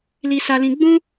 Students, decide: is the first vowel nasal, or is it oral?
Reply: oral